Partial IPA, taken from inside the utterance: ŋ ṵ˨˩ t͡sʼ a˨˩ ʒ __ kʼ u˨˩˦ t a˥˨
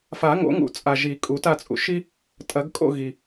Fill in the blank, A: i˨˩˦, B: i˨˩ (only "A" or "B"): A